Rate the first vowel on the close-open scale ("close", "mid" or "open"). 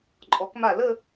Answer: mid